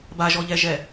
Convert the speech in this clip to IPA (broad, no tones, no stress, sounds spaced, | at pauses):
b a ʒ ɔ ʎ ɛ ʒ ɛ